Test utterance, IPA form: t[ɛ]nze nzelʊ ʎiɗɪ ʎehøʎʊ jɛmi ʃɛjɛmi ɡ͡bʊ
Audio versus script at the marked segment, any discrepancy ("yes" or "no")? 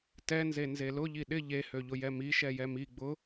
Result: no